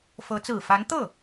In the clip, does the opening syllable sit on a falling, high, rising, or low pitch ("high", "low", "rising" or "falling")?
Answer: rising